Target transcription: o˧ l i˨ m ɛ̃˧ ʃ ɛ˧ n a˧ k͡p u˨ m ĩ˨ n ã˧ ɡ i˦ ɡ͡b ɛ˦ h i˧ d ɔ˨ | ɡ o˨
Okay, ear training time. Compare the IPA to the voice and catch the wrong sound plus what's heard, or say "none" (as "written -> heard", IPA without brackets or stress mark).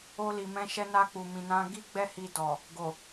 none